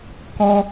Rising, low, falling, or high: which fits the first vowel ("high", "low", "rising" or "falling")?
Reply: high